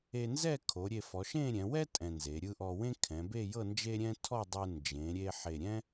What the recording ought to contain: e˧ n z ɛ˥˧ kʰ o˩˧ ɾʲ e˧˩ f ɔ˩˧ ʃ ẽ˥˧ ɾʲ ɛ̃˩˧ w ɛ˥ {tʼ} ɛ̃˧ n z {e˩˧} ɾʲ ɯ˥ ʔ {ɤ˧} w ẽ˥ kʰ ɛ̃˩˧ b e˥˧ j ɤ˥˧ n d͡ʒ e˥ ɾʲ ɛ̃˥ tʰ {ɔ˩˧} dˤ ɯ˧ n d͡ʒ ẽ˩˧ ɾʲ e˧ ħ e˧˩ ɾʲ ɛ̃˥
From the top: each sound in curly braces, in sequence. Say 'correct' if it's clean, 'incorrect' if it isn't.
correct, correct, incorrect: ɔ˧, incorrect: ɔ˥˧

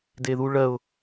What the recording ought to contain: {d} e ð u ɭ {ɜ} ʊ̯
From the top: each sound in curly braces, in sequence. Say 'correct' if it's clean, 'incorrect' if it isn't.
correct, correct

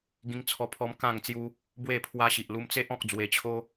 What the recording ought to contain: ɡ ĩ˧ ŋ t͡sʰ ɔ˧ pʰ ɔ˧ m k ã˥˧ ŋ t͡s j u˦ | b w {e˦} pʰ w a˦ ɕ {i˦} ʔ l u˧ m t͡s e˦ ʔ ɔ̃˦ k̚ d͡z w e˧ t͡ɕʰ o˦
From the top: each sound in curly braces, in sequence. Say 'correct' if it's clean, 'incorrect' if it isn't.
incorrect: e˥˧, incorrect: i˨

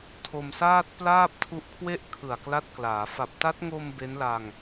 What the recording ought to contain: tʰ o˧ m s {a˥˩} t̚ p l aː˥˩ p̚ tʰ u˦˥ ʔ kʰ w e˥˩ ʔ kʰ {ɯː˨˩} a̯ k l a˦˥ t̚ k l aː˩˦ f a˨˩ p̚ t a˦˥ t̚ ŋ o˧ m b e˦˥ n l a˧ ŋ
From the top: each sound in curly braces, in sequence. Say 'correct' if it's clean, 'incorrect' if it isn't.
incorrect: aː˥˩, incorrect: ɯ˨˩

